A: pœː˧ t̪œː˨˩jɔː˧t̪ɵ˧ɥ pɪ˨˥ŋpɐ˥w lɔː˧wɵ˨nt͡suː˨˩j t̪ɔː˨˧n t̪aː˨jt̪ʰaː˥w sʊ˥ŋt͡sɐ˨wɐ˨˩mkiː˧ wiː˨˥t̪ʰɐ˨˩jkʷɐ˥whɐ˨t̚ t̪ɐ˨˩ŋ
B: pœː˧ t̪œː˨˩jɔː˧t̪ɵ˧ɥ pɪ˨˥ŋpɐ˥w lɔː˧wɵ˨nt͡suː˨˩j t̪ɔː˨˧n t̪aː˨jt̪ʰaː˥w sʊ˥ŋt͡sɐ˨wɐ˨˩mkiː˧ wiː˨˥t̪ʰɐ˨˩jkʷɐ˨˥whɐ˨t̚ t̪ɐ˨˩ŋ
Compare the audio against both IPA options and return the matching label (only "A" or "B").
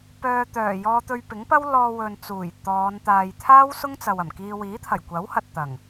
B